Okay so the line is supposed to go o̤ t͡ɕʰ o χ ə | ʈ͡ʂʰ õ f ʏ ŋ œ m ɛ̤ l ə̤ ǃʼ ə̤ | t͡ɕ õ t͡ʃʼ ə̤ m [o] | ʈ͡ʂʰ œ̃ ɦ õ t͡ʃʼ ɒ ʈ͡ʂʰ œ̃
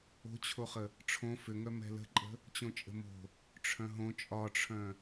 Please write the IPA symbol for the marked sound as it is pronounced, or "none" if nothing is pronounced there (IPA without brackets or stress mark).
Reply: o̤